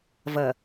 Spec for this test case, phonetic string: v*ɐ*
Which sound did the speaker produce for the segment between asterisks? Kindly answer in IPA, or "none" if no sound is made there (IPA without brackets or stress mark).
ɐ